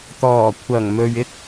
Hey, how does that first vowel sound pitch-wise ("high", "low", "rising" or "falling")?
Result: low